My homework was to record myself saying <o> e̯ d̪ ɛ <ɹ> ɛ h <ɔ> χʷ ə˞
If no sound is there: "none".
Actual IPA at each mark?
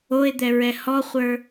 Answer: o, ɹ, ɔ

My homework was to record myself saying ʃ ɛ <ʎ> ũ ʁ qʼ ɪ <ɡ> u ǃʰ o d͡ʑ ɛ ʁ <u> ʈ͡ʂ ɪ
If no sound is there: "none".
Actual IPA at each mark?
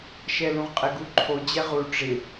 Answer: l, ɡ, u

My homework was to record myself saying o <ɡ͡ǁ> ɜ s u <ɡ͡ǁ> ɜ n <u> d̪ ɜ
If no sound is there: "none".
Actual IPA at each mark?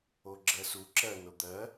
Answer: ɡ͡ǁ, ǁ, o

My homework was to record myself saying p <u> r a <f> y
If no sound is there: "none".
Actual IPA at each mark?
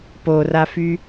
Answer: o, f

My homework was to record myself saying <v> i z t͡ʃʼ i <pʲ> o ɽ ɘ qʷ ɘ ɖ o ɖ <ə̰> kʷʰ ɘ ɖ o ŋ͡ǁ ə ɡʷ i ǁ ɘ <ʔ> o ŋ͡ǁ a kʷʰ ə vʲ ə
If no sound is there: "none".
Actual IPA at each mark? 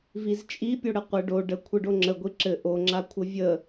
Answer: v, pʲ, ə, ʔ

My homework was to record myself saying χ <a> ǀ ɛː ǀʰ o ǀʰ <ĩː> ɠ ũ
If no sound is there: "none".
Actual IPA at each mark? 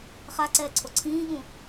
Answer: a, ĩː

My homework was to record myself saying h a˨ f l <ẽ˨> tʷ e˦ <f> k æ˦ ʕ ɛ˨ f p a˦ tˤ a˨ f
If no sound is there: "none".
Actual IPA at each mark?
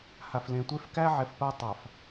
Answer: ẽ˨, f

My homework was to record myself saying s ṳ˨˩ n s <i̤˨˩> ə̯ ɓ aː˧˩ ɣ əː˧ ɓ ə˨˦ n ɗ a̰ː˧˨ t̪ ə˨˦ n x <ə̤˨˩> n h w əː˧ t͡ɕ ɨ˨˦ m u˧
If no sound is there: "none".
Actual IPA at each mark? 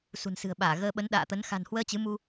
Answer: ɨ̤˨˩, a̤˨˩

